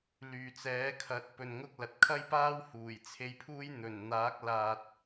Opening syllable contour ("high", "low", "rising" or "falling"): low